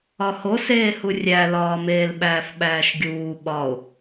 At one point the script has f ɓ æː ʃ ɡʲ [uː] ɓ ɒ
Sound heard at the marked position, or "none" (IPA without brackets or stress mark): uː